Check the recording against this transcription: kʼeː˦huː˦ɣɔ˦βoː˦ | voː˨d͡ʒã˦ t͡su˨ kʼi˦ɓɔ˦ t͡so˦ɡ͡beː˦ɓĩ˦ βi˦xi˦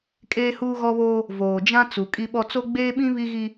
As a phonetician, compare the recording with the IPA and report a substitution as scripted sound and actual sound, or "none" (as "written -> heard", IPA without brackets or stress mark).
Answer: x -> ɣ